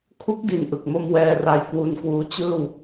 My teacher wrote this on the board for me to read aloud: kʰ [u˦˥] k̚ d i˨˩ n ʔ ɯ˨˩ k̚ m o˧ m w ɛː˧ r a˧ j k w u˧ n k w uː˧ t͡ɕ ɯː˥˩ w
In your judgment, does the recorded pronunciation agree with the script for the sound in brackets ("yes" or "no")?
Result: yes